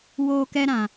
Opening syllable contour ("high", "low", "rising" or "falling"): high